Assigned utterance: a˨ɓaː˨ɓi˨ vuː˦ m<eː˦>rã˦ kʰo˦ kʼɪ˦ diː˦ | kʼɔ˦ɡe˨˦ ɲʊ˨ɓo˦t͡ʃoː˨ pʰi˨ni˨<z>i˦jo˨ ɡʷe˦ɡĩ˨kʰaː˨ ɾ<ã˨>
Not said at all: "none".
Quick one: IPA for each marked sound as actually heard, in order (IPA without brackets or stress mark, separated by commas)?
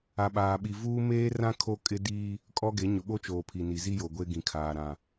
eː˦, z, ã˨